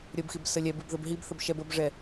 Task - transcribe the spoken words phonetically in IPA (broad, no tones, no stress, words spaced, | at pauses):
ɾʲəbxib səlʲɛbib ðəbɦibθəb ʃɛb əbʐɛ